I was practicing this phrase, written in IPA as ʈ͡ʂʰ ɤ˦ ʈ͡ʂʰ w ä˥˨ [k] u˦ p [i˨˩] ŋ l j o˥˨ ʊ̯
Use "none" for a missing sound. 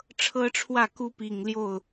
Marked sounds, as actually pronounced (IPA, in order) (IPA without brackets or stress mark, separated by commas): k, i˨˩